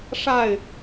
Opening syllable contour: falling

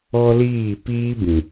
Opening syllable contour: high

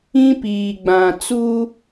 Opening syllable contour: high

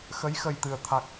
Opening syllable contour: rising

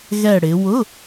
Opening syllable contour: falling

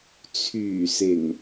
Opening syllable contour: low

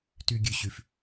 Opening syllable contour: low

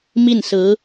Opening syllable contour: falling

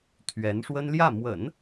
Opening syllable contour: rising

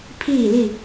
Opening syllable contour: falling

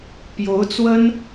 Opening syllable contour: rising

